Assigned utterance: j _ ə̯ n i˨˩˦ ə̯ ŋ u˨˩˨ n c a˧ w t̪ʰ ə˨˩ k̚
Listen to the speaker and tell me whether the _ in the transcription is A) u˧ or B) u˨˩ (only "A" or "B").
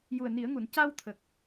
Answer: B